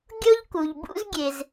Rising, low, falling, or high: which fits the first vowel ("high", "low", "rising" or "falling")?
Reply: high